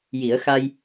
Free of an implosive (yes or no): yes